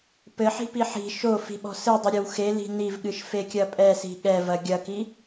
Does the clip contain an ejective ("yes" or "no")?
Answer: yes